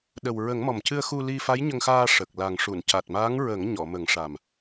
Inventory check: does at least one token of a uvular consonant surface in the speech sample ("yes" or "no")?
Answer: no